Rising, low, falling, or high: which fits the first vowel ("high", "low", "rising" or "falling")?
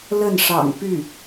falling